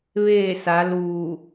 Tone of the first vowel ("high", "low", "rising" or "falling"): falling